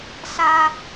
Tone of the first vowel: high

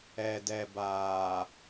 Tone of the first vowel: low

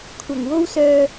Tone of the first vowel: low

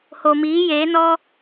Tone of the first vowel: low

